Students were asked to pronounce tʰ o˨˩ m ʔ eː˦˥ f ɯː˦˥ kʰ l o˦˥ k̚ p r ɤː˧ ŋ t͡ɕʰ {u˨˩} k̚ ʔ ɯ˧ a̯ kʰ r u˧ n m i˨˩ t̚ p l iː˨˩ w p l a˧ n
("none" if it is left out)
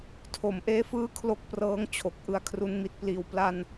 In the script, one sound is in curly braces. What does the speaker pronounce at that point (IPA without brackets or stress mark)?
o˨˩